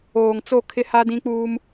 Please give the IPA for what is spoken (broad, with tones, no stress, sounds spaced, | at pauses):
oː˨ ŋ t͡s o˦˨ kʰ ɪ˦ h a˦ d ĩ˦ k͡p uː˦ m